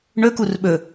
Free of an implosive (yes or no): no